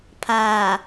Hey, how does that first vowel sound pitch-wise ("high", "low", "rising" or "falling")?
low